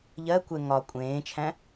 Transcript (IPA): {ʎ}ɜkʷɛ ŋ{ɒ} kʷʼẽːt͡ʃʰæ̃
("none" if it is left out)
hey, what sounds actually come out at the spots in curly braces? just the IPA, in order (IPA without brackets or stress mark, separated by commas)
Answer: ʎ, ɒ